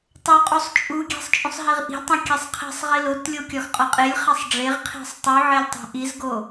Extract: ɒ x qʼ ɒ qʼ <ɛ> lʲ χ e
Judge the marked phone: incorrect: e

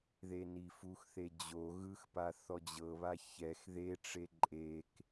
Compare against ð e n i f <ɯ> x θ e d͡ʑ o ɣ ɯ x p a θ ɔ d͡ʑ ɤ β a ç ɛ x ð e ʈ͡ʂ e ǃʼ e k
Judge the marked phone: incorrect: u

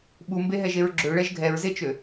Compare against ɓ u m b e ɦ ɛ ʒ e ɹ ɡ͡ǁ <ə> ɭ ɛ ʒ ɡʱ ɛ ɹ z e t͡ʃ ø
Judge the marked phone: incorrect: ø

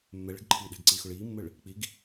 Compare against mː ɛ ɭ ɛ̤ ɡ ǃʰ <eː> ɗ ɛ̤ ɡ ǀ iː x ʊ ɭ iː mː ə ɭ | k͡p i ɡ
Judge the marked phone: incorrect: iː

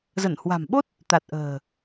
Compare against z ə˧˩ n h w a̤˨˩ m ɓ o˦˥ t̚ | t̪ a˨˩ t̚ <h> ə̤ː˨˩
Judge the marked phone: incorrect: ʔ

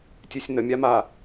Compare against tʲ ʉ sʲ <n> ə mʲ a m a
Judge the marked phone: correct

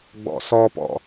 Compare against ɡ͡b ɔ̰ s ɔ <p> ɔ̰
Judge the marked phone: correct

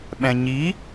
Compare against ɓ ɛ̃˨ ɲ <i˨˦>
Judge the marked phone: correct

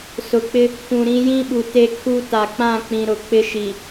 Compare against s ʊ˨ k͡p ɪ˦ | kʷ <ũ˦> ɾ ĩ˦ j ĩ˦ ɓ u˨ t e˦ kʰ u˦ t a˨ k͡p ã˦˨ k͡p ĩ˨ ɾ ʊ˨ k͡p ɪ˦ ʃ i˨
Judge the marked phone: incorrect: ũ˨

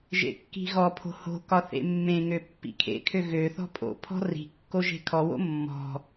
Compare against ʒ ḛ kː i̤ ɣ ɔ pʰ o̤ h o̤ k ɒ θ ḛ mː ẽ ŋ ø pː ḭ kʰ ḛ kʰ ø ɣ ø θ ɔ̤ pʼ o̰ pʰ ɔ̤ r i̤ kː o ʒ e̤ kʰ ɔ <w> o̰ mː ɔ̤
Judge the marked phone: correct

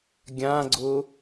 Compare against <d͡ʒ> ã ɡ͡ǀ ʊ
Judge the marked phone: incorrect: ɡʲ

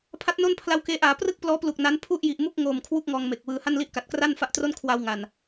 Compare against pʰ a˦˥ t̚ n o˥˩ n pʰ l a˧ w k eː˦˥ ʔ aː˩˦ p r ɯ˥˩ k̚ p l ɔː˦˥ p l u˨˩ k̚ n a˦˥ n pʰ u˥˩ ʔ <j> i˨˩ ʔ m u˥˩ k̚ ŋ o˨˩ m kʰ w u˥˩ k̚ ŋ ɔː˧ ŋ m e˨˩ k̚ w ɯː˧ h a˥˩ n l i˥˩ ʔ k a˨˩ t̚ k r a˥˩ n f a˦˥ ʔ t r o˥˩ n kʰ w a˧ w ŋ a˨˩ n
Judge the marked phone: correct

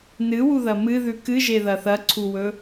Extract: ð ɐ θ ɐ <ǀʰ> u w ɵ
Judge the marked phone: correct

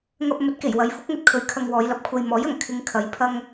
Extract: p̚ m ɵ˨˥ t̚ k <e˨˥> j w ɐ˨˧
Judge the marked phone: incorrect: e˨˩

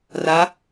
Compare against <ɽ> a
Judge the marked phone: incorrect: r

